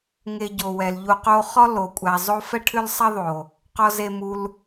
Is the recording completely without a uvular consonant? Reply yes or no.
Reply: no